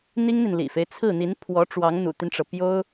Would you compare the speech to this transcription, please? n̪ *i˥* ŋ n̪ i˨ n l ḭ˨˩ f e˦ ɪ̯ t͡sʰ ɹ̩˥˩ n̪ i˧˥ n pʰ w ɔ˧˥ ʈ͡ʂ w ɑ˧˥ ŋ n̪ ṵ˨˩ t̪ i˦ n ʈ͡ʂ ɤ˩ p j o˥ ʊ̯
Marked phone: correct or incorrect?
correct